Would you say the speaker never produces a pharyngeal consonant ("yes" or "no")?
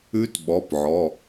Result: no